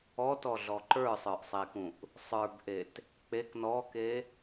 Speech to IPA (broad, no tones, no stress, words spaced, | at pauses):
ɔtɔɮɔ ǃə˞sˤə˞ʔsˤekũʔ | sˤə˞bʔet | k͡pek nɔke